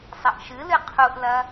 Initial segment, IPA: sˤ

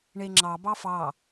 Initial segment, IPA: ɳ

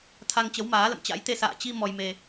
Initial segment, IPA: t̪ʰ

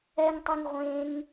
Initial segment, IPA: ɛ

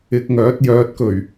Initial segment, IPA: ɪ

